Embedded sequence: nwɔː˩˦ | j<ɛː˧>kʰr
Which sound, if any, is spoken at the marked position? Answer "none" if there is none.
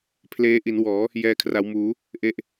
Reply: ɛː˧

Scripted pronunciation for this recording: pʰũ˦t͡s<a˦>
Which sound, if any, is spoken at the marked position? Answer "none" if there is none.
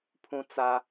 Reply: a˦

